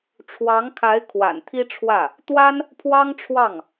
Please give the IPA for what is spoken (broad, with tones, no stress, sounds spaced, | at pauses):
ʈ͡ʂʰ w ɑ˧˥ ŋ kʰ a˧˥ ɪ̯ kʰ w a̰˨˩ n t̪ʰ i˥ ʈ͡ʂʰ w ä˥˩ | t̪ w a˥ n | pʰ w ɑ˥ ŋ ʈ͡ʂʰ w ɑ˥˩ ŋ